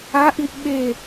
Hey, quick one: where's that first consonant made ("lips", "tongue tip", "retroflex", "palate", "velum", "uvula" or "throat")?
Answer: throat